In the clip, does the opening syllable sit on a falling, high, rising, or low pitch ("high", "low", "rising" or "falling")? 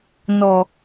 low